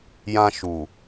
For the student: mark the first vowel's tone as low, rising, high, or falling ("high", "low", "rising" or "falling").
high